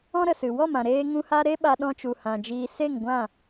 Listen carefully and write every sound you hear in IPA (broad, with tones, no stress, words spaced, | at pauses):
ɔ̃˦ɾə˨sɨ˨ wɔ˦˨mã˨ ɾeː˦ŋũ˦ ha˦ ɾe˦ ɓa˧ɗɔ̃˧t͡ʃu˨ hã˨d͡ʒiː˧ se˦˨ŋɡʷã˦˨